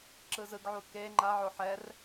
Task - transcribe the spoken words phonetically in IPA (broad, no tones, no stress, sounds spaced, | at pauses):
ǁ ɯ z ɯ ɡ ʕ u k e ŋ͡ǃ a ʕ o ħ ɛ r